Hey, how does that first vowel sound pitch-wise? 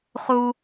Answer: high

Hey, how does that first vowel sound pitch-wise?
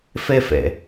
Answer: high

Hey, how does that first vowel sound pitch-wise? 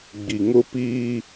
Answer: low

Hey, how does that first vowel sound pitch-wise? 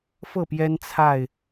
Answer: falling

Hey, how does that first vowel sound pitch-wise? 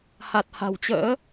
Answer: low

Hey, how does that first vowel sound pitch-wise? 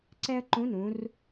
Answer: high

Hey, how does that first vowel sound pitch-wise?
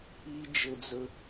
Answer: low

